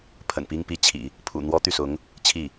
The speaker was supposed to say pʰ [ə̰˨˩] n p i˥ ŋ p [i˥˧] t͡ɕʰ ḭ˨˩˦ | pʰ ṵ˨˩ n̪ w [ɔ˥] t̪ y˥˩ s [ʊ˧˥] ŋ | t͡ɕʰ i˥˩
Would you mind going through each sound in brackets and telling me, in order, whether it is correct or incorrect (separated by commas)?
correct, incorrect, correct, correct